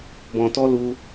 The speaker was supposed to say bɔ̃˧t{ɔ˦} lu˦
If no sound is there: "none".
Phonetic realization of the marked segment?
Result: ɔ˦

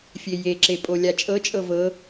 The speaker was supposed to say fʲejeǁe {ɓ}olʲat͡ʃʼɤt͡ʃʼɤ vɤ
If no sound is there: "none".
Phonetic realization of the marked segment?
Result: pʼ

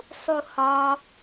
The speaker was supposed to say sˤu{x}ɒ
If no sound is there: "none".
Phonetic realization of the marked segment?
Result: h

